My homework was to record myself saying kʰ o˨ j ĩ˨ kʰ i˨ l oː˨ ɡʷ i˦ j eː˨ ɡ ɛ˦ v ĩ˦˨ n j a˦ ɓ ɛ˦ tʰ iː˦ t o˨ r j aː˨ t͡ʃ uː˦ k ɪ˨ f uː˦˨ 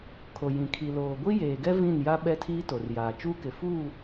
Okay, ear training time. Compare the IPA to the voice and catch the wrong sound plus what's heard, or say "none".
none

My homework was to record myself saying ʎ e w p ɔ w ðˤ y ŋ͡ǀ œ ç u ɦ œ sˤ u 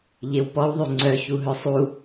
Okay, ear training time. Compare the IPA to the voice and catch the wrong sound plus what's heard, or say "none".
none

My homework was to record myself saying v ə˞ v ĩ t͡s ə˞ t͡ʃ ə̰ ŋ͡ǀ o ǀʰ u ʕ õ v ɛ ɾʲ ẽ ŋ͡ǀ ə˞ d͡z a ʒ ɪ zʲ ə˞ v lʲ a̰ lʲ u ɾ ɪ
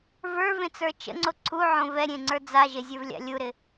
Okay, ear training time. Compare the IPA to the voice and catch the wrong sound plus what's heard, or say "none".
ĩ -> ẽ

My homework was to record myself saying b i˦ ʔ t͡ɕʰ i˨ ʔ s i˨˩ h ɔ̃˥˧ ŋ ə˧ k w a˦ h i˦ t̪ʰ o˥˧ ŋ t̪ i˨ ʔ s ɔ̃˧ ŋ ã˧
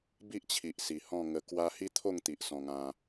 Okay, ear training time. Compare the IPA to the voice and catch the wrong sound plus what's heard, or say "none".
none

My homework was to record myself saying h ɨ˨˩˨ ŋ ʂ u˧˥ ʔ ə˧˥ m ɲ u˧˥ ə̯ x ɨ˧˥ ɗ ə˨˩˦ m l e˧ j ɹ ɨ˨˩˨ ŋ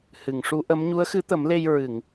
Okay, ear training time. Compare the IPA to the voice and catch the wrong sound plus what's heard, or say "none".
ɗ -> t̪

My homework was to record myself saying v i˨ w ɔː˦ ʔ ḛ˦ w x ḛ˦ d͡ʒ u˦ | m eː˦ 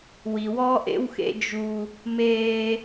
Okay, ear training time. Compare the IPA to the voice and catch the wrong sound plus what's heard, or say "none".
v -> w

